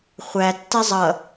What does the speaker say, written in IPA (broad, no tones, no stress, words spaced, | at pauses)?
χʷæ tːɛzˤʌ